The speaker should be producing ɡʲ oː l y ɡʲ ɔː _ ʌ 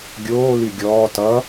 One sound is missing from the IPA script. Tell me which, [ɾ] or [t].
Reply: t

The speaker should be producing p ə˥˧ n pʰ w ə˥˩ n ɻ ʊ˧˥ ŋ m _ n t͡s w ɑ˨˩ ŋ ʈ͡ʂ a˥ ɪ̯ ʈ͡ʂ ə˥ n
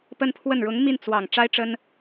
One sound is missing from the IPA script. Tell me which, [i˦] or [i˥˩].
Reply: i˥˩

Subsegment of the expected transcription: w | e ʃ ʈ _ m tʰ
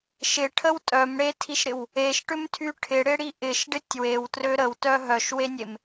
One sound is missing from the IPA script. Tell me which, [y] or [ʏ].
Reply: ʏ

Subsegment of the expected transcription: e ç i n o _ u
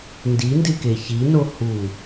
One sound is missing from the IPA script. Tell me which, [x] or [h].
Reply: h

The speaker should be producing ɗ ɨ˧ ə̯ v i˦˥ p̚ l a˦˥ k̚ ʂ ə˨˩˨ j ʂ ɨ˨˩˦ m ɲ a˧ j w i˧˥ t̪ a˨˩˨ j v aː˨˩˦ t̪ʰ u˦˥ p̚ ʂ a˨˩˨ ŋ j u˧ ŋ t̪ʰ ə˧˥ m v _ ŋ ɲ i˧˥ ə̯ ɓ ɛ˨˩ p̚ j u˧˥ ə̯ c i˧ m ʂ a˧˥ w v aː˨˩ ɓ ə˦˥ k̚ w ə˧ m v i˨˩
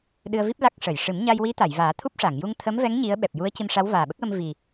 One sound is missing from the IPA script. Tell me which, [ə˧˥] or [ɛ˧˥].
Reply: ɛ˧˥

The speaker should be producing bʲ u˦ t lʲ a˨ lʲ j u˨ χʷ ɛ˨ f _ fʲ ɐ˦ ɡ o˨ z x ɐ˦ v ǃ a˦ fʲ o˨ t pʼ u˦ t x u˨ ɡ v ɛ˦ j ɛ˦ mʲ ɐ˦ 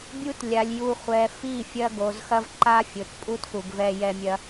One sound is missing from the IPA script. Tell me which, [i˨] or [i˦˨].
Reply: i˦˨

